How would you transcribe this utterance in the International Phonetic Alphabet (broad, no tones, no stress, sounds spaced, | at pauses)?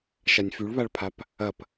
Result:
ʃ a nʲ f y ɭ β a ɭ pʰ a p | ɐ p